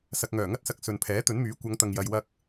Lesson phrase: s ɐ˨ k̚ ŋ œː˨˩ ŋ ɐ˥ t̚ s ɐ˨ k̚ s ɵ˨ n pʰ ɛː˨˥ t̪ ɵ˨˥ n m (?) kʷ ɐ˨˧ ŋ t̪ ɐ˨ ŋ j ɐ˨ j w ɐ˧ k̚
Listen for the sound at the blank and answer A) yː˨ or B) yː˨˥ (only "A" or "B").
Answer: B